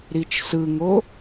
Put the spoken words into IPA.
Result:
ɾit͡ʃsɯŋo

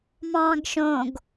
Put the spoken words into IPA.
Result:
mɑ̃ːɡʃõɡ

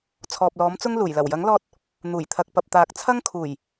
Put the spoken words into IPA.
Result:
t͡sʰɔː˨p̚lɔː˨˥mt͡sʊ˥ŋ luː˨˩j lɐ˨˩wjɐ˨˥ŋlɔː˧t̚ | n̪uː˨˩jt̪ʰɐ˨k̚pɐ˨p̚ t̪aː˨k̚t͡sʰɐ˥ŋkʰuː˨˩j

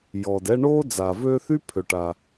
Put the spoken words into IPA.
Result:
jɔ˩dɛ˦ɳoː˥ d͡zaː˩vø˦θy˥ pʰø˩ʈa˩

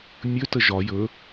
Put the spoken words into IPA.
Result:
mʲɵ təʒɒ jɵ

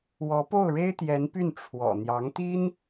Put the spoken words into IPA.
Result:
wɔ˧˥po˥˩ʊ̯ɻe˥ɪ̯t̪jɛ˧˥n py˥˩n ʈ͡ʂʰwɔ̰˨˩ n̪jɑ˧˥ŋt̪i˥n

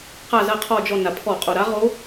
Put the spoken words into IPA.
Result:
qa˦˨zɐ˦˨ qʰɔ˦˨d͡ʒɔ˦˨ na˩pʰɔ˧˩˧qʼo˩ ɾa˧˥ʁo˧˥

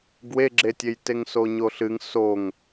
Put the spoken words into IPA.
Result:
ɡweɡ͡ǁetʲej teŋsoɲoɬɨŋ soŋ

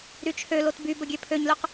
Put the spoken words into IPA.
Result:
ɾyt͡ʃʰølot by bəɡʲøpʰøɲløq

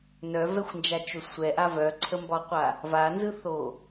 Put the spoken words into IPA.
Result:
nœvɛxʷnd͡ʒat͡ʃo sʷɛʔa vœǀʰəmbɒqʷa | vanzɯθo

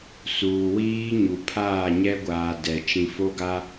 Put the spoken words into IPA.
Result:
suː˨wiː˦ ɲu˨pʰaː˦˨ɲɛ˦ɡʷaː˨ dɛ˨ t͡ʃĩ˨fo˦ɡa˦

